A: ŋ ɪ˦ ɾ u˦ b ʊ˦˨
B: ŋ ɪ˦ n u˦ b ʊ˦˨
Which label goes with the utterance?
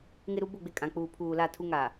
A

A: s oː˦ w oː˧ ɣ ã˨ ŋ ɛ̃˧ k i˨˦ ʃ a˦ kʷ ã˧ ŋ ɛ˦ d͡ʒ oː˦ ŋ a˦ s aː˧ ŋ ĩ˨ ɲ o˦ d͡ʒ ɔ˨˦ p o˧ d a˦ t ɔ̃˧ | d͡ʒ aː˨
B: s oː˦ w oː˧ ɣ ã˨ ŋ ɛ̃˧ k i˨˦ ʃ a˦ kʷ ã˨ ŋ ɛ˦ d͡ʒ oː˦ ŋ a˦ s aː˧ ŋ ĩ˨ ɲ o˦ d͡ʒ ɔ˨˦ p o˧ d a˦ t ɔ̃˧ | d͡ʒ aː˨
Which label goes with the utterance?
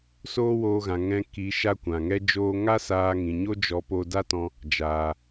B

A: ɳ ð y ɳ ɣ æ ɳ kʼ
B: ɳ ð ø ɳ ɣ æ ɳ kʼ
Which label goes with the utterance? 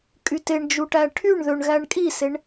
B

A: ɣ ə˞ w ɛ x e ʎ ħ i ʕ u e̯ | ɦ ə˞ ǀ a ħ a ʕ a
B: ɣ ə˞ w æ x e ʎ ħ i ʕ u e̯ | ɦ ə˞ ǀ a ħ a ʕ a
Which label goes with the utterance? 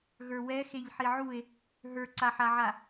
A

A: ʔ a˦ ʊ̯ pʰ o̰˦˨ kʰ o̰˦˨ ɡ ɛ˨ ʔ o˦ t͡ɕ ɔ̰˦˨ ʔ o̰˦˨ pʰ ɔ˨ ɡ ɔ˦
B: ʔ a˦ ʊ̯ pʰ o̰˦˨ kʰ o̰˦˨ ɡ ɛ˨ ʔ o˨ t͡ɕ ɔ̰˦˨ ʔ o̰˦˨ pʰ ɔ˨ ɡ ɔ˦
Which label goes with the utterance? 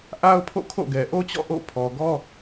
A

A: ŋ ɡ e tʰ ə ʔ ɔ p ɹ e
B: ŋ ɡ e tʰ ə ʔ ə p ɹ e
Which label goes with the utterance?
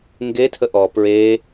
A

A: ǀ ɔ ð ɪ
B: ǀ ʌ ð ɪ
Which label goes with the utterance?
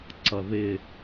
B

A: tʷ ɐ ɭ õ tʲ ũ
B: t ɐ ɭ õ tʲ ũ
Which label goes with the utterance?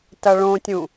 B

